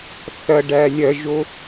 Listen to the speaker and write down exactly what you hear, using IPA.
θ ɐ ɖ æ lʲ ɐ ʒ o

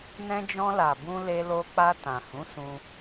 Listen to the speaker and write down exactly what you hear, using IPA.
n ɛ̃˧ d͡ʒ ɔ̃˧ l a˨ b ũ˧ l e˧ l o˧ k͡p a˧ t ã˨ h ũ˨˦ s ũ˧

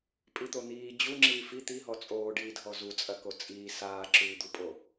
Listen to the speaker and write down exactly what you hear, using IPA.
pʼ i t̪ o n̪ iː d͡ʑ u ŋ͡ǁ iː f i t̪ i ɦ ɔ t͡sʼ oː ɖ iː dʱ ɔ z u t͡sʼ ɐ k o t͡sʼ iː s aː ǁ ʉː d̪ u pʼ o

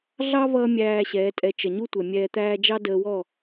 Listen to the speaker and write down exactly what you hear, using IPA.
ɮ ɑ˦ v ʌː˧ mʲ æː˧ ɕ ɛː˨˦ tʼ ɛ˧ t͡ʃ ə˨ ɲ u˦ tʷ ɛ˨ mʲ ɛː˧ t̪ æː˦ d͡ʒ ɑ˦ d əː˧ w ɔ˦˨

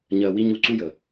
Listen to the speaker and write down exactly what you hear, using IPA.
ɲ ɜ˧ w i˦ ɲ u˧ ǀ u˦ j ə˨

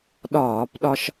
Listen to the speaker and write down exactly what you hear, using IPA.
ɗ ɒː˧˩˧ p ɗ ɒ˧ ʃ

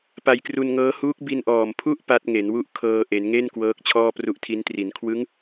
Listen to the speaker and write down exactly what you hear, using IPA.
p a˧ j k r u˧ n ŋ ɤː˦˥ h uː˦˥ k̚ b i˧ n ʔ ɔː˨˩ m pʰ u˥˩ ʔ p a˦˥ t̚ ŋ e˩˦ n w u˥˩ ʔ kʰ ɤː˧ ʔ e˩˦ n ŋ e˥˩ n k w ɤː˦˥ k̚ t͡ɕʰ ɔː˥˩ p r u˦˥ ʔ tʰ i˦˥ n t r i˩˦ n kʰ w ɯ˦˥ ŋ

